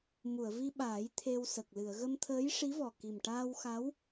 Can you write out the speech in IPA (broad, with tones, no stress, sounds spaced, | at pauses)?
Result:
m u˨˩˨ ə̯ v i˧ ɓ aː˨˩˦ j t̪ʰ e˧ w s ə˨˩ k̚ l ɨ˨˩˨ ə̯ ɣ ə˧ m t̪ʰ əː˧˥ j ʂ i˧˥ v ɔ˨˩ k i˨˩ m ʈ aː˧ w x a˧˥ w